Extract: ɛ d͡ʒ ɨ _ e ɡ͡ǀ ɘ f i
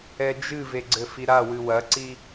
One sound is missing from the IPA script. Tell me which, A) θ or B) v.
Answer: B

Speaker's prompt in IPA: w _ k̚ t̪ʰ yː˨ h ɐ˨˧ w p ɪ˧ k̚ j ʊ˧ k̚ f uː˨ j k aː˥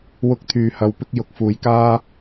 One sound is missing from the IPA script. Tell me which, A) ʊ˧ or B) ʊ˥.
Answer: A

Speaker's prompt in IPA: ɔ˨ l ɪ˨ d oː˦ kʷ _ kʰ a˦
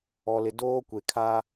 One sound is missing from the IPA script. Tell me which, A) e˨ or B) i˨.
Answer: A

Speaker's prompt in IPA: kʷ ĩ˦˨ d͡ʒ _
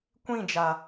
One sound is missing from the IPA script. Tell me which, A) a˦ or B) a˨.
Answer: B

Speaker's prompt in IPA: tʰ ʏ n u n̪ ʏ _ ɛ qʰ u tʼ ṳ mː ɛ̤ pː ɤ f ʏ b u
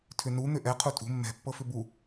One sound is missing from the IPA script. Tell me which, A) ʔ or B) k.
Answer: A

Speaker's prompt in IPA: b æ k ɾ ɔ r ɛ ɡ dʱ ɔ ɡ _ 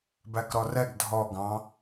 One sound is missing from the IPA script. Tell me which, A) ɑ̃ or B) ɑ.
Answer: A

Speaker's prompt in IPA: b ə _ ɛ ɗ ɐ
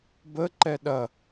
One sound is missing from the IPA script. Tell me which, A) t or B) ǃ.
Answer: B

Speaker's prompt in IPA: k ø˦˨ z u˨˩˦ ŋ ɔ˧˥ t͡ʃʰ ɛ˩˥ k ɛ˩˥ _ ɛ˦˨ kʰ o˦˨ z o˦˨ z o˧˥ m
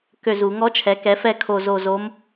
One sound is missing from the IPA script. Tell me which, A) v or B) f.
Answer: B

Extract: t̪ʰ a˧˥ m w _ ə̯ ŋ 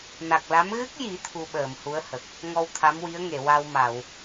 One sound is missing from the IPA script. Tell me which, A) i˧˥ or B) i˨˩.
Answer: A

